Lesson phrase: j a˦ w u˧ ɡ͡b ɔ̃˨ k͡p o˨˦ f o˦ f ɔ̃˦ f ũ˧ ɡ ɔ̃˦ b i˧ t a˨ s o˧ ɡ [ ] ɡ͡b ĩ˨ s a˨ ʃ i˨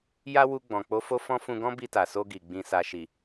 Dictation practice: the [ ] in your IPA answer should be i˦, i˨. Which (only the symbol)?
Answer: i˨